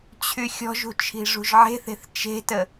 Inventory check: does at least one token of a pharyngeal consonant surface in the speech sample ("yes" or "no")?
yes